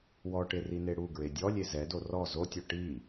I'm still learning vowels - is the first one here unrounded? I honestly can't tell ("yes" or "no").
no